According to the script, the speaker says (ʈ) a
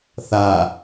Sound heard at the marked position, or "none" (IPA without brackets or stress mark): θ